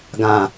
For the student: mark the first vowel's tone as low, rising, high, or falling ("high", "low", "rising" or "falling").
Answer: low